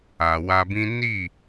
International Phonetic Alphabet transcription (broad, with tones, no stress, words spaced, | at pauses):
a˨wa˧bĩ˦ ni˦˨